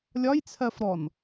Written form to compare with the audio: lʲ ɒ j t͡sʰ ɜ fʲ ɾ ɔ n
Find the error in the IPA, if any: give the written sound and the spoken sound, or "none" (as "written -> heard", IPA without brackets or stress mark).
fʲ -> f